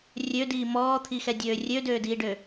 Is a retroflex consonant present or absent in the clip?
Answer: present